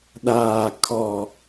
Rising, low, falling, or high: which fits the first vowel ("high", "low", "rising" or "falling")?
low